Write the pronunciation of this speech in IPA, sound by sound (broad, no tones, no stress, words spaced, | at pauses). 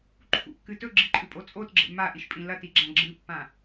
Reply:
ǃʰṵkːɨ tɵɡ͡ǁiǃʼʉpʼo t͡sʼotɡ͡ǁḛ maʔiʃpʼĩ lɐtiɡ͡ǁã ɡ͡ǁɨpːã